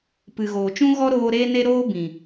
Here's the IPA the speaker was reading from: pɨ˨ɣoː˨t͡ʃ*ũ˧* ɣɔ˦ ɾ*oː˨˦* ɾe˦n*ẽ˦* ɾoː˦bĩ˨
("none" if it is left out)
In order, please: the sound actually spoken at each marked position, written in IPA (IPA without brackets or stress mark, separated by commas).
ũ˦, oː˦, e˦